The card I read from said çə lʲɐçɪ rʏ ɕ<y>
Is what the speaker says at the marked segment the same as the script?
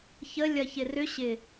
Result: no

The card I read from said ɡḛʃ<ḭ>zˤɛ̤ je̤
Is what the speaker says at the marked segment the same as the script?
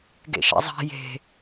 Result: no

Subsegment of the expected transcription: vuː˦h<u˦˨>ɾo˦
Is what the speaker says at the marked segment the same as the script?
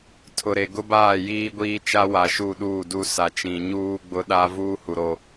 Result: no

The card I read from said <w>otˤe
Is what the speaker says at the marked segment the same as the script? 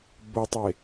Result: no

